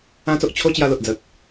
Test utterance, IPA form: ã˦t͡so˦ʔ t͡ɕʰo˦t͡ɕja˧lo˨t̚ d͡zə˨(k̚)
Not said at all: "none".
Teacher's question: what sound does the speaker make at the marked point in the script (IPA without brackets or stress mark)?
k̚